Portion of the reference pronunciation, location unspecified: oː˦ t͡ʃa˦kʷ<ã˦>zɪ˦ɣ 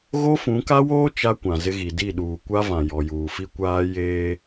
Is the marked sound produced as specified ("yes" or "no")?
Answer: no